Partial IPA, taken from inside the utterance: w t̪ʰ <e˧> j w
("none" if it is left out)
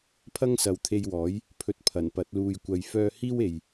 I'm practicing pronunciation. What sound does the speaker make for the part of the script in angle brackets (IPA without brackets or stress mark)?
e˧